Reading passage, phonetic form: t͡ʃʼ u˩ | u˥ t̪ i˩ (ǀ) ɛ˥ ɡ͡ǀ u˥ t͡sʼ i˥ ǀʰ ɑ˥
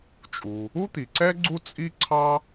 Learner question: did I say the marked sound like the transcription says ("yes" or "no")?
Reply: yes